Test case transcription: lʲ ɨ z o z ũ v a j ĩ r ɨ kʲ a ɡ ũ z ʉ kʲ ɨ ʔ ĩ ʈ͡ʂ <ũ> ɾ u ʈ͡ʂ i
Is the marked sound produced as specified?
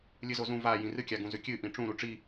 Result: yes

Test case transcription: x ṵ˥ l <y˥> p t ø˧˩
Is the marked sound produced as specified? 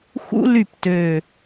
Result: no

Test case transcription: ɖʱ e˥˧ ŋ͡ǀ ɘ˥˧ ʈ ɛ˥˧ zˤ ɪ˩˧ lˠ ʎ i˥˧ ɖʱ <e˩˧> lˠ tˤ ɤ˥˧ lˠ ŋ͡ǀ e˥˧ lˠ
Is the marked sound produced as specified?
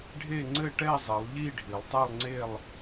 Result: no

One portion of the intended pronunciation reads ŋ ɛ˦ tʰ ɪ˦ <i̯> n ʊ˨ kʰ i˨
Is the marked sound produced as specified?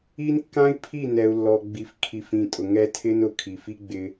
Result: no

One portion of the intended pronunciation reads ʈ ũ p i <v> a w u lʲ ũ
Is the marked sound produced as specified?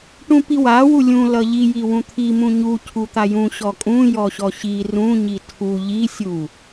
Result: no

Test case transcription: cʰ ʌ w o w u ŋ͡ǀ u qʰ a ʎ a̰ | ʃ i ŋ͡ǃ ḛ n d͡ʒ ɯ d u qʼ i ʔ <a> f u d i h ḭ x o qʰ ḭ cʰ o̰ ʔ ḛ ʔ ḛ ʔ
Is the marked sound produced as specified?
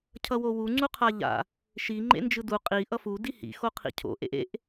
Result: no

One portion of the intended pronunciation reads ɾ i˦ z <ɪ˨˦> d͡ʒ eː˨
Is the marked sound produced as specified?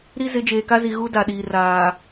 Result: yes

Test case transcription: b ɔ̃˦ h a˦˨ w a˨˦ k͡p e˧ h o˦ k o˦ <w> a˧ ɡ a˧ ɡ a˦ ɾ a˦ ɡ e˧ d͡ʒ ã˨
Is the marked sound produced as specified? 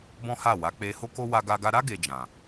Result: yes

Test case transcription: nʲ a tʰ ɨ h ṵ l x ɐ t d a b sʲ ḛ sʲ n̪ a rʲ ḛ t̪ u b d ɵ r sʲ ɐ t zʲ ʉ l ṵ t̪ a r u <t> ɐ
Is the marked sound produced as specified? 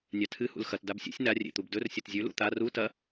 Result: yes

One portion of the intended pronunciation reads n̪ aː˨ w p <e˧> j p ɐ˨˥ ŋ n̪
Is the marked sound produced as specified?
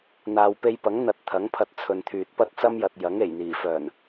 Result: yes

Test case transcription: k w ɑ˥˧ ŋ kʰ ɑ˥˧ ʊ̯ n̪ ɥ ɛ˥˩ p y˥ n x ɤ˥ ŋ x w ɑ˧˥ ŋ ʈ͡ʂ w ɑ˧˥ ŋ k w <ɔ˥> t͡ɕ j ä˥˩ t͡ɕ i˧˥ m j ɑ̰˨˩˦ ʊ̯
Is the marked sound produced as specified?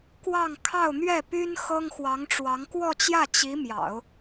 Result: no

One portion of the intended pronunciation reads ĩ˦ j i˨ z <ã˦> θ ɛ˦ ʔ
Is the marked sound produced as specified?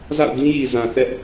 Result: no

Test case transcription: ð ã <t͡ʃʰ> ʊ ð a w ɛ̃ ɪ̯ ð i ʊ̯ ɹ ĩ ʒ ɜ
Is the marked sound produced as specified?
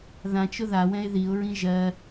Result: no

